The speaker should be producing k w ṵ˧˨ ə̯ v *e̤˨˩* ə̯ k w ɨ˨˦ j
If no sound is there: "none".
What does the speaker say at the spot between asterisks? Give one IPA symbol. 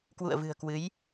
ɨ̤˨˩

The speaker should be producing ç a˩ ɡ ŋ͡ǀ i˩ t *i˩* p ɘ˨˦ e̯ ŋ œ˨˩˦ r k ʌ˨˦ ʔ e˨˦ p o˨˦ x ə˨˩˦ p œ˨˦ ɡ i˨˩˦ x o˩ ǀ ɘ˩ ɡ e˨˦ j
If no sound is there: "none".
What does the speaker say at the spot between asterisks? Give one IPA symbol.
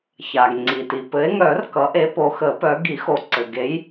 i˩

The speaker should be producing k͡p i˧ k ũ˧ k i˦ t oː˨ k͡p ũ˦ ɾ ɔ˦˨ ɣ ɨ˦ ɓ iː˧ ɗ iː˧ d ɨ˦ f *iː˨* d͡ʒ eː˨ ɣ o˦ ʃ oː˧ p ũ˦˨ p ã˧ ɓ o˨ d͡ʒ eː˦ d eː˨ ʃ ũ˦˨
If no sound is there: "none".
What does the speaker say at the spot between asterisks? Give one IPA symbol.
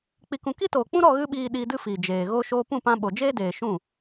iː˨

